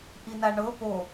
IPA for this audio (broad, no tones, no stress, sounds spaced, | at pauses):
ʔ i n a ɳ ɤ p o